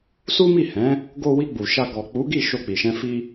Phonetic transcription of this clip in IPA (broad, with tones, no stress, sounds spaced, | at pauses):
s u˦ m i˦˨ h ɛ̃˨˦ | ɡ o˧ w i˧ ɡ͡b u˨ ʃ a˧ ɡ ɔ˨ k͡p u˨˦ ɡ i˦˨ ʃ o˧ k͡p i˨ ʃ ɛ̃˧ f i˧